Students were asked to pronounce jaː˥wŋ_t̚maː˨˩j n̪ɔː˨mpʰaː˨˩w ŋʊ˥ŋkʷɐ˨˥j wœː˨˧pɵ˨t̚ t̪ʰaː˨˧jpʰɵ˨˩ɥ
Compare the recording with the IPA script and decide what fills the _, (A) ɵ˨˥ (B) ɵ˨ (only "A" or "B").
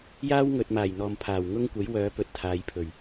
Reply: B